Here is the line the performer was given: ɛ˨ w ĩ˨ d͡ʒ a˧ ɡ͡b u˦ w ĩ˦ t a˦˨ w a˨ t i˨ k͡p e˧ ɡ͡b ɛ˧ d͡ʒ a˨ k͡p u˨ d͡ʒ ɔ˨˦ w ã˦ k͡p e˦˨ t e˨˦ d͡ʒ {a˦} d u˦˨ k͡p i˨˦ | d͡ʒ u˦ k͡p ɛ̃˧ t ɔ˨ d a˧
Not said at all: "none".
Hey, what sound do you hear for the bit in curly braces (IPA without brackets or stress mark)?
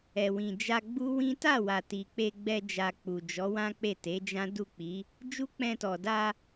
ã˦